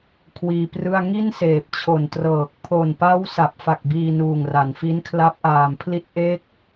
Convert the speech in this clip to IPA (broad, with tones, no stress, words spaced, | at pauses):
kʰwiː˧prɯ˥˩a̯ ŋi˥˩nseː˨˩p̚t͡ɕʰo˨˩ntrɤː˨˩k̚ pʰo˨˩npa˦˥w sa˨˩p̚fa˨˩k̚ biː˧nuː˨˩ŋra˩˦n fi˦˥nkʰla˦˥p̚ʔaː˨˩m pʰli˦˥t̚ʔe˦˥k̚